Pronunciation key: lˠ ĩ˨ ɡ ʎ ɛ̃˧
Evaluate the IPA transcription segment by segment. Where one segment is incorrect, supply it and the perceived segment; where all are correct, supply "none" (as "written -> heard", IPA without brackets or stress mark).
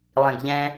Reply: none